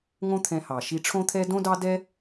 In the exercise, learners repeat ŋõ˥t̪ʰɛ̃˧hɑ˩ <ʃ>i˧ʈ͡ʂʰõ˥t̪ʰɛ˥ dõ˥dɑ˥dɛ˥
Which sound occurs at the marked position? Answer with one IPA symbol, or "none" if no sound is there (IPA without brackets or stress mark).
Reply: ʃ